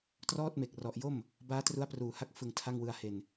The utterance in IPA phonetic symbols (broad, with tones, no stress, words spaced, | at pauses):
trɔː˥˩t̚me˨˩k̚ rɔ˨˩ʔjo˥˩m | baː˦˥tru˦˥a̯pruː˨˩ ha˦˥k̚ fɯ˨˩ŋ tʰa˥˩ŋwɯ˧a̯ he˨˩n